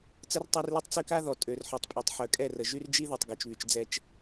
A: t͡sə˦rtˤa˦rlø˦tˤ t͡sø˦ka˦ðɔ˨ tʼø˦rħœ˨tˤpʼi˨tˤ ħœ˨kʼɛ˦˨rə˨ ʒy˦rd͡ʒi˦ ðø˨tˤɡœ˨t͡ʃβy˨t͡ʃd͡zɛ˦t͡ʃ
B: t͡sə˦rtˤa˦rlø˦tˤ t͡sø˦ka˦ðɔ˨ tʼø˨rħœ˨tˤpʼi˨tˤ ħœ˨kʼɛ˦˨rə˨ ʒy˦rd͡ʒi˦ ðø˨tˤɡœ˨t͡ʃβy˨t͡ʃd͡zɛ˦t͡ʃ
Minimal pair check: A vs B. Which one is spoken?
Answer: B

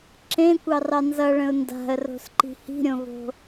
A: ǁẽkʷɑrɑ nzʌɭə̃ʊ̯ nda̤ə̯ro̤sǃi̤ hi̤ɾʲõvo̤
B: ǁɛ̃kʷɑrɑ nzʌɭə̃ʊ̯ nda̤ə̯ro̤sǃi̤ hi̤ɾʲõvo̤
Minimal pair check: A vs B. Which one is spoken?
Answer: A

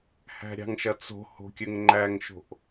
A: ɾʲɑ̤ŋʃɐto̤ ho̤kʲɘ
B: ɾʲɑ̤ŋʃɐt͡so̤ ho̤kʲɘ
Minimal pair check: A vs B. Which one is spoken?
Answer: B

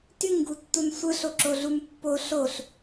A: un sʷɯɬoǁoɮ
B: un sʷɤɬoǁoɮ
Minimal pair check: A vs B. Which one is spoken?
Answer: A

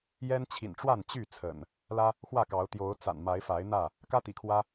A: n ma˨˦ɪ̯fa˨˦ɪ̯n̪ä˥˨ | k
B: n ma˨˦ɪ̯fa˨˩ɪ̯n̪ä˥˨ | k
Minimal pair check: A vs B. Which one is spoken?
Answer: A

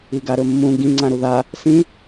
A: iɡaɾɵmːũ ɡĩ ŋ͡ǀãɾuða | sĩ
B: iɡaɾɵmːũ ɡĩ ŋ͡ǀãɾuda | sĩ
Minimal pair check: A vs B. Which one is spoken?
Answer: A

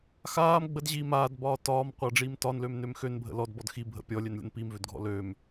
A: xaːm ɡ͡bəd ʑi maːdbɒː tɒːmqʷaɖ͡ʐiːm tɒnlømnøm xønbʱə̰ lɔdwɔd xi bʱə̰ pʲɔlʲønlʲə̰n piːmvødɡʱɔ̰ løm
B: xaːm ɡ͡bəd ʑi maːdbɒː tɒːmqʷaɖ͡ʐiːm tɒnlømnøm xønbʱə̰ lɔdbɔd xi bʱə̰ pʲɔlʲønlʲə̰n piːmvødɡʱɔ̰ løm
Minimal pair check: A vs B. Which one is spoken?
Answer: B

